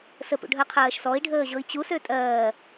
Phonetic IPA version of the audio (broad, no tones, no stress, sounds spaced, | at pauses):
s ə p ṵ ɖʱ ɜ qʰ ɜː ʃ s ɔ i̯ ɖʱ əː ʑ ɤ i̯ t͡ɕ u s ø tʼ ɜː